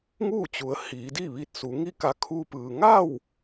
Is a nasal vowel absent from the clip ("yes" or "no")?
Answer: yes